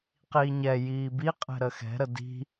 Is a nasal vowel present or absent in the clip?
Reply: absent